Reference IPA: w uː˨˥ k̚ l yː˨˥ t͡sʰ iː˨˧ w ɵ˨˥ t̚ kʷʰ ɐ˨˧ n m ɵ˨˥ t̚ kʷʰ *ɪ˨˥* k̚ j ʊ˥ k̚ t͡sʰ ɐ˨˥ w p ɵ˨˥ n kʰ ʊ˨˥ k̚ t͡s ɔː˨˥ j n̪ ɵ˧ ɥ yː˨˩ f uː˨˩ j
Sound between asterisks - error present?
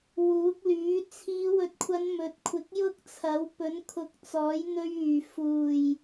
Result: no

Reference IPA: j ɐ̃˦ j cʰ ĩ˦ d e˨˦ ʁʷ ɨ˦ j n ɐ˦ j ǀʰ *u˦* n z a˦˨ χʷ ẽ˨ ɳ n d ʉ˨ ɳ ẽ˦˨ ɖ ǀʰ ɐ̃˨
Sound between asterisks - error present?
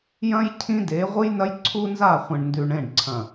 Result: no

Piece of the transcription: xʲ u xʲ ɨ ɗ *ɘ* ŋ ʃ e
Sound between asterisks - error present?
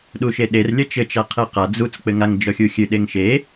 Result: yes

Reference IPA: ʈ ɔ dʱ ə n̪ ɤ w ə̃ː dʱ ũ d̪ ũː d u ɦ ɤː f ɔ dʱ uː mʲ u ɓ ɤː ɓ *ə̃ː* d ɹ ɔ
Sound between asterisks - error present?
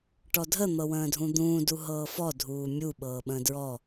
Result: no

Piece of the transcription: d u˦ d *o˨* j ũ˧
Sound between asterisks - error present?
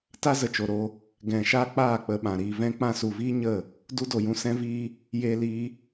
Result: no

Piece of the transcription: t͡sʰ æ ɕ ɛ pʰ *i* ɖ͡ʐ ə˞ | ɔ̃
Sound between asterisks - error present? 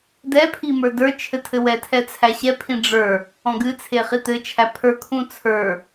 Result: yes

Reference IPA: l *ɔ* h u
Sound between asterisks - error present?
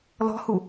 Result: yes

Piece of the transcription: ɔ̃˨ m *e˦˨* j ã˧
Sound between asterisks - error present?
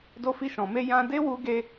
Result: yes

